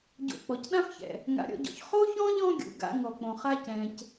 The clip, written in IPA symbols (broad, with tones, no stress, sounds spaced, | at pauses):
ɟ o̰˨ k͡p ɔ˩ c ɗ ã˥ f ç ɛ̰˩ | ŋ a̰˨ ɾʲ ɔ̰˦ ɟ ɔ̰˨ ç χ o˥ ç ɔ̃˥ ʎ ɔ̃˦ ɡʲ ṵ˩ ɡ a̰˦ ŋ ɔ˩ k͡p õ˩ χ a˥ c ɛ̃˩ c